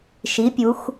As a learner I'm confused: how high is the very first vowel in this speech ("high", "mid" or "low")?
high